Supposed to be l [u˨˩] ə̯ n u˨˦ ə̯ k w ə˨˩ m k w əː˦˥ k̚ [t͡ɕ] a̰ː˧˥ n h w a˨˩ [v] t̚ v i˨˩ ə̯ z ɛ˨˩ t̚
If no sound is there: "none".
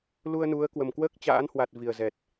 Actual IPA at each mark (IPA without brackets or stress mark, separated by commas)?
u˧, t͡ɕ, none